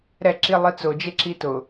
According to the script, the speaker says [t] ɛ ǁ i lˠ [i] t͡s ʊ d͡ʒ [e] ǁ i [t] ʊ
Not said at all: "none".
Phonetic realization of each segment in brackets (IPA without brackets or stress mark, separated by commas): ɾ, i, e, t